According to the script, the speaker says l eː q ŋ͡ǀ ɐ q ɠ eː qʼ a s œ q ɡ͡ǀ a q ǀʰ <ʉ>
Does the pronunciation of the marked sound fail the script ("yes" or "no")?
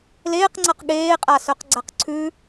no